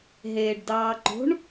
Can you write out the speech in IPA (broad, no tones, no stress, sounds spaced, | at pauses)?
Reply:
ɦ eː ɖ d ɑː ǃ o̤ ɳ